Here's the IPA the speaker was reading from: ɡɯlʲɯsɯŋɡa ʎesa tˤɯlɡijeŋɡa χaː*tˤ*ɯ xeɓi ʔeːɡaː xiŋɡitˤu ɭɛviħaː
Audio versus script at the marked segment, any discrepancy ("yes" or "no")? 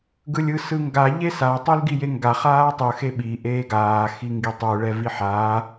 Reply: no